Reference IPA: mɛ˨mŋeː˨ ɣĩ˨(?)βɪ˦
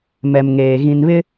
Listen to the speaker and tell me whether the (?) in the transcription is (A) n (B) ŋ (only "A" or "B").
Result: A